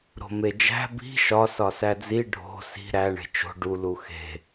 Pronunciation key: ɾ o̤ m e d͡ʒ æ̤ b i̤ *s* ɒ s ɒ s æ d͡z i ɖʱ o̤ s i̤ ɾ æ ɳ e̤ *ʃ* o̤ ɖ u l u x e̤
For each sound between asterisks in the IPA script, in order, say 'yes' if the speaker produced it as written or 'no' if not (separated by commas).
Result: no, no